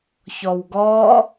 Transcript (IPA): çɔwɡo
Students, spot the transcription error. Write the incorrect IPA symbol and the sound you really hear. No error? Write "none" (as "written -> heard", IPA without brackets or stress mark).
o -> ɔ